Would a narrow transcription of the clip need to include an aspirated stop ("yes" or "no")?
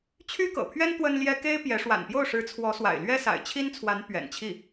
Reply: yes